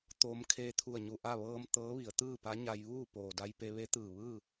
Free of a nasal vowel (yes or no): yes